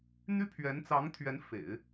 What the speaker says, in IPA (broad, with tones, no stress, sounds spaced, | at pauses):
n̪ y˥ pʰ ɥ ɛ˧˥ n t͡s ɑ˧˥ ŋ t̪ʰ ɥ ɛ˧˥ n f ḛ˨˩˦ ɪ̯